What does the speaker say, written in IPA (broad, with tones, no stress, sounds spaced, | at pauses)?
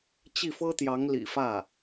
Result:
t͡ɕ i˥˩ f ɤ˥ t̪ j ɑ˧˥ ŋ l ḭ˨˩ f ä˥˩